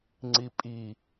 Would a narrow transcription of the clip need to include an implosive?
no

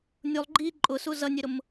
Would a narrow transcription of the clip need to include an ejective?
yes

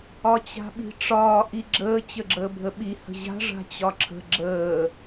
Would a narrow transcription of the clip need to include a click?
yes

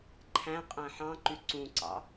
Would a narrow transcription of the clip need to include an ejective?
yes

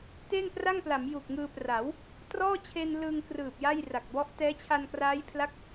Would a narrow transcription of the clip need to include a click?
no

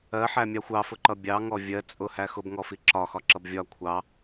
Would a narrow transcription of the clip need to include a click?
yes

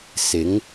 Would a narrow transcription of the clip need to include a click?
no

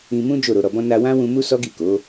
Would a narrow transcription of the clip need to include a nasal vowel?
yes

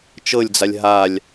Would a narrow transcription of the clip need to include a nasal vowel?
no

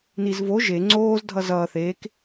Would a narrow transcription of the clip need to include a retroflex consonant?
no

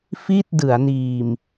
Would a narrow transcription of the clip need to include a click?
no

